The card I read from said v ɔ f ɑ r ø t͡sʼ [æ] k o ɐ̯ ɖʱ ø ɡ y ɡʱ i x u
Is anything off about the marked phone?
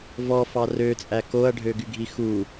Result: no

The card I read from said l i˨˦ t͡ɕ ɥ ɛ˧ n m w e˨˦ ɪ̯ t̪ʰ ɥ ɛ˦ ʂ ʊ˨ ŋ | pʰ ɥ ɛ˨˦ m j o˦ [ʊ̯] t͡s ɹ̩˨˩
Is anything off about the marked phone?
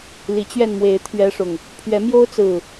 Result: no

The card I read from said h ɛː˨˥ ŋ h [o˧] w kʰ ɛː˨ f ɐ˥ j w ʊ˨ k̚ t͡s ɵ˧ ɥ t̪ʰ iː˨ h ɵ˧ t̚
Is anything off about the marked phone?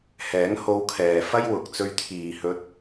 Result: no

